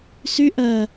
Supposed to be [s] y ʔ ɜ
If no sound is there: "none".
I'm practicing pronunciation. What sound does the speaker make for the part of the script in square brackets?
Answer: s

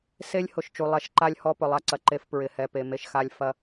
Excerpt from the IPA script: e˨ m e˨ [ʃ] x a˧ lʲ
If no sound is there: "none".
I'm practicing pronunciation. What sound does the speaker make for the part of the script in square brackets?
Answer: ʃ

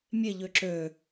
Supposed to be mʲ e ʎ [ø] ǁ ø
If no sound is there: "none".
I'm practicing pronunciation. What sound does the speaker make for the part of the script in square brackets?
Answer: ø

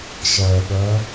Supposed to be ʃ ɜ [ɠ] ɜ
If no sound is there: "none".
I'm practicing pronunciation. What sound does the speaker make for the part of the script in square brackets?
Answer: ɠ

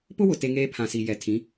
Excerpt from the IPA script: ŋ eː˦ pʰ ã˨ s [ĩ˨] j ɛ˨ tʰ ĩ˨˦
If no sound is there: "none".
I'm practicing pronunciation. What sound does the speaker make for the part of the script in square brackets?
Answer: i˨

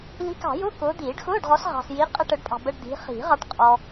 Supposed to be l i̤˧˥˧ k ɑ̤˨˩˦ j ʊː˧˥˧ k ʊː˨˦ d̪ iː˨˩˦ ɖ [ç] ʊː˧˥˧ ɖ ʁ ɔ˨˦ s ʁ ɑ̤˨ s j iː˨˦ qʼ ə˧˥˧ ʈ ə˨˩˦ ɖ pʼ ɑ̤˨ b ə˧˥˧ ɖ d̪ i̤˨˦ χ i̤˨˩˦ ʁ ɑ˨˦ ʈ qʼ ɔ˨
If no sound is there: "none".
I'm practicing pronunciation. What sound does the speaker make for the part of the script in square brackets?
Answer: x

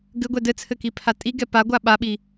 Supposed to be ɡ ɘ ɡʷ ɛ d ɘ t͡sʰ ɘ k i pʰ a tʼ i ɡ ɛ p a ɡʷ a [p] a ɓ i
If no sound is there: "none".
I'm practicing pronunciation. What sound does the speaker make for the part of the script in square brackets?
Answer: ɓ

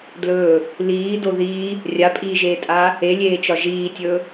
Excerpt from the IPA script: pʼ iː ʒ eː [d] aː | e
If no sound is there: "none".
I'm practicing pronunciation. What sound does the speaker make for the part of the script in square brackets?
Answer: tʼ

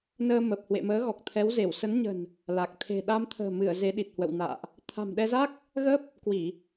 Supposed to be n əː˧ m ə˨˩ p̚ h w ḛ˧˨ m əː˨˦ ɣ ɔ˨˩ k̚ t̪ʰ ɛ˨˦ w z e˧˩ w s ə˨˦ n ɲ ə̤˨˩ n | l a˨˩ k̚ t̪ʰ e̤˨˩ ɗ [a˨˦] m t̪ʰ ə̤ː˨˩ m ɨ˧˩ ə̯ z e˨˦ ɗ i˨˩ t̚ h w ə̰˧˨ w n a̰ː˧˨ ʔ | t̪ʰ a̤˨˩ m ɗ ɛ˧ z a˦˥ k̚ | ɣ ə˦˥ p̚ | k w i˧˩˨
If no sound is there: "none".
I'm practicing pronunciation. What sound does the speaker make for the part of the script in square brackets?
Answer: a˧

